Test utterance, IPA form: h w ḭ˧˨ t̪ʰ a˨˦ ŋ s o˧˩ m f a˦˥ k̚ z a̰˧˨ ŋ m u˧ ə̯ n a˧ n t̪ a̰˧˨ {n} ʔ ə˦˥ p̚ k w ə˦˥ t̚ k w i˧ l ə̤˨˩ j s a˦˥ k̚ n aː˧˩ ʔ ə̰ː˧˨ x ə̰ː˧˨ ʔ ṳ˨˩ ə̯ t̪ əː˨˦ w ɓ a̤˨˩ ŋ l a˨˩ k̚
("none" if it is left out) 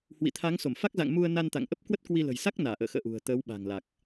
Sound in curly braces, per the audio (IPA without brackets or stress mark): ŋ